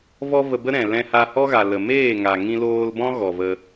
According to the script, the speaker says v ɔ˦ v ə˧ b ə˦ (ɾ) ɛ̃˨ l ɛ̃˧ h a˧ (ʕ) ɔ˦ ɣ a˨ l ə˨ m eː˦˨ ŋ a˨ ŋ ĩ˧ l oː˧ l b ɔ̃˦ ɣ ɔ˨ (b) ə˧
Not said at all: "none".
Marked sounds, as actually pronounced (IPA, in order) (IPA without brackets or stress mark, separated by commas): ɾ, h, v